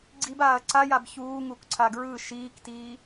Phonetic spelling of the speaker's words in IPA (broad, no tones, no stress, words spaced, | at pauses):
ɡ͡ǀib aːɐ̯ǀajab çuː ŋukǀʰaɡɹɯ ʃiːktiː